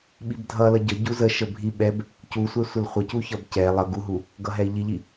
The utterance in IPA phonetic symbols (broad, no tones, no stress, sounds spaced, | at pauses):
ɓ i b dʱ ʌ l ʌ ɟ ə ɟ u z ə ʃ ə bʱ i ɓ ɛ b | c u sʷ ɛ sʷ ə l χʷ ʌ c u ç ʌ b c ɛ lˠ ʌ ɡ u ɦ u | ɡ ʌ ɦ ɛ i̯ ʎ i ʎ i